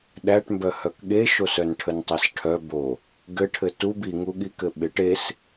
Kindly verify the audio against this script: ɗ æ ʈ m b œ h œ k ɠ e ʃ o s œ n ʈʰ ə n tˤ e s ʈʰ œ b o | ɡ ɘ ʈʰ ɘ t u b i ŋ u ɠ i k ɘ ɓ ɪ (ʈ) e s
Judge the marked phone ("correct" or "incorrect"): correct